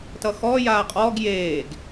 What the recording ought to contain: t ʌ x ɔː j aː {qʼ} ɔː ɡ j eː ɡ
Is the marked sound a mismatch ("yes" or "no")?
no